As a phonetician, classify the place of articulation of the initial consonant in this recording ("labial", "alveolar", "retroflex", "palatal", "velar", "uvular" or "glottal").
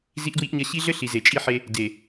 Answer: alveolar